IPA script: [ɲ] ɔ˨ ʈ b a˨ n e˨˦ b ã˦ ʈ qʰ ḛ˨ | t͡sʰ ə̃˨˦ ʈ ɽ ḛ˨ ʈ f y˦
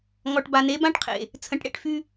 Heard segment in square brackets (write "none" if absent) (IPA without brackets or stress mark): ŋ